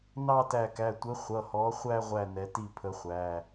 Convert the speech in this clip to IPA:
n ɑ˥˧ t æ˧˩ k æ˩˧˩ tʷ ə˨˥ χʷ ʌ˩˧˩ h ɔ˨˥ χʷ æ˥˧ ʁʷ æ˧˩ n ɛ˨˥ t i˥˩ pʰ ə˨˥ χʷ æ˩˧˩

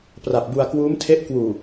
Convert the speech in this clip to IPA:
p r a˨˩ p̚ b u˧ a̯ k w uː˦˥ m tʰ e˦˥ ʔ k w uː˨˩

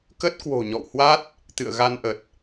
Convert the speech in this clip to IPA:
k ə˦˥ t̚ k w o̤˨˩ ɲ ɔ̰˧˨ w h w a˦˥ t̚ | t̪ ɨ̰˧˨ ə̯ ɣ a˧ n ʔ ə˨˩ t̚

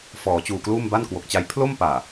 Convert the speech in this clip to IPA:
f ɔː˩˦ t͡ɕ uː˨˩ k l uː˥˩ m b a˥˩ n k w o˨˩ k̚ t͡ɕ a˦˥ j pʰ l o˥˩ m p aː˨˩

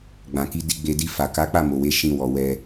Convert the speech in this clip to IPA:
ɡ͡b ã˨ k i˨˦ d i˧ ɡ͡b e˧ d i˧ f a˨ k a˨˦ k͡p a˦˨ m o˨ w e˨˦ ʃ ĩ˧ w ɔ˨ w ɛ˧

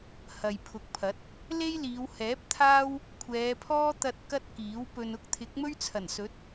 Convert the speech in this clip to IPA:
h ɐ˨ j pʰ ʊ˨˥ k̚ pʰ ɐ˨˥ t̚ | l e˥ j l iː˨˧ w h ɛː˨˥ p̚ t̪ʰ aː˥ w | kʷʰ ɛː˨˧ pʰ ɔː˥ t̪ ɐ˧ t̚ k ɐ˥ t̚ k iː˨˥ w p ɵ˧ n ʊ˥ k̚ t̪ʰ ɪ˨˥ k̚ m ɵ˥ ɥ t͡sʰ ɐ˨˩ n s ɵ˨˥ t̚

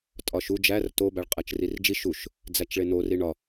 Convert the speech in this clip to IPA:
tʼ ɒ ʃ u d͡ʒ æ r t o b æ ɭ qʼ æ t͡ʃ r i r d͡ʒ i ʃ u ʃ | d͡z æ t͡ʃ ɭ e n o r i ɳ ɒ

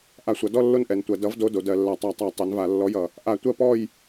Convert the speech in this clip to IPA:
ʔ a˧˩˧ sʷ ʌ˩˧ d ɔ˥˨ lː o˥˨ n ʔ ɛ˩˧ n tʷ ɜ˩˧ d ʌ˩˥ v d o˧˥˧ d o˩˧ d ɜ˧˩˧ lː a˧˩˧ tˤ a˧˩˧ tˤ a˧˩˧ tˤ ɛ˩˥ n v a˧˩˧ lː ɔ˧˥˧ j ʌ˩˧ | ʔ a˧˩˧ tʷ ɜ˥˨ p ɔ˥˨ j

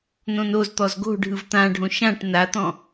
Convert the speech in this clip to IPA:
n õ n o z t̪ ɔ z ɡ o̤ ɖʱ ɯ v t̪ ã ɖʱ õ ʃ ã ʈ n a t̪ ɔ̃

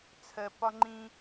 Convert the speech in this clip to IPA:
t͡sʰ ɜ˨ p ɒ˦ ŋ͡ǃ ĩ˦

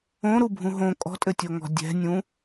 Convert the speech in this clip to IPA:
õ ɾ u bʱ ũ ɦ õ kʼ ɔ̤ tʼ ɘ tʲ o ŋ ɔ̤ dʲ ɛ̤ nʲ ũ

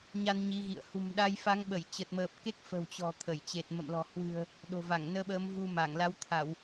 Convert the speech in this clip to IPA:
ɲ a˧ n ɲ i˨˦ ɣ ḭ˧˨ ə̯ h ṳ˨˩ m ɗ a˧ j f a˨˦ ŋ ɓ ə˧˩ j t͡ɕ ə˨˩ t̚ m əː˨˩ p̚ k e˦˥ k̚ f ə̤˨˩ w t͡ɕ ɔ̤˨˩ t̪ʰ ə˧˩ j t͡ɕ e˨˩ t̚ m ə̰˧˨ m l ɔ̤˨˩ h w ɨ̤˨˩ ə̯ | ɗ o̤˨˩ v a˧˩ ŋ n əː˧ ɓ əː˨˦ m v u˧ m a˧˩ ŋ l a˨˦ w t̪ʰ a˧˩˨ w

